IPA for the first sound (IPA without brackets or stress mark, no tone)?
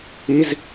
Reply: i